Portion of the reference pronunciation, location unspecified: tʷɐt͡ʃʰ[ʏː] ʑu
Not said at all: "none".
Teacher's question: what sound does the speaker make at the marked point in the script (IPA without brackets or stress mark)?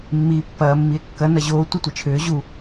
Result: ʏː